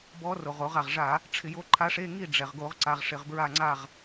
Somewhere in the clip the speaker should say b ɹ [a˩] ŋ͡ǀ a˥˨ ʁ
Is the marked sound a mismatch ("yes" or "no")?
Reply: yes